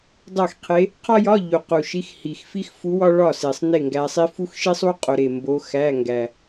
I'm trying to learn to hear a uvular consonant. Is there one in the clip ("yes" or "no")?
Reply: yes